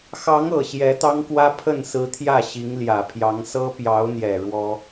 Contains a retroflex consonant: yes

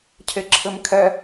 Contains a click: yes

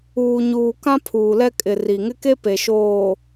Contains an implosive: no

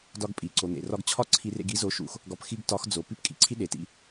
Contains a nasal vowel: no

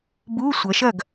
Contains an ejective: no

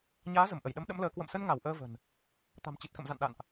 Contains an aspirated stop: no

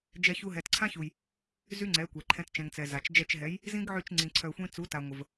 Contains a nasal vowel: yes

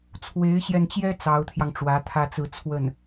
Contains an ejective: no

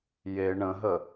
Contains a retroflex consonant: yes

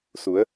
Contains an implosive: no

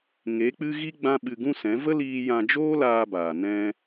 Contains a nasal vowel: yes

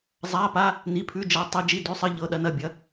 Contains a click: no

